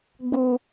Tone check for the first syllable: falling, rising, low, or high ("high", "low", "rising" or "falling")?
low